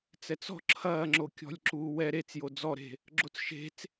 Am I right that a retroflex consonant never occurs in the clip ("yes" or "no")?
yes